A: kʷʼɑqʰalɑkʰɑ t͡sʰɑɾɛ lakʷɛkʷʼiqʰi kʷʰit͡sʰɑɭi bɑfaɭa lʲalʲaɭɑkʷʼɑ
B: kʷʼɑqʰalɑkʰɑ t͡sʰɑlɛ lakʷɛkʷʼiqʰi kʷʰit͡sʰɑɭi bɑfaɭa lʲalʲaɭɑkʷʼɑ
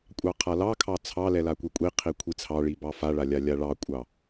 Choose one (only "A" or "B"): B